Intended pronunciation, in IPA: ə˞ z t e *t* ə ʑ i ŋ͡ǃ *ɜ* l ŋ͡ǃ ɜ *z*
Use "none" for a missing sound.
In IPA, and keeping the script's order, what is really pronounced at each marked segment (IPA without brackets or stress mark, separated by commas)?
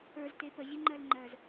p, ɜ, z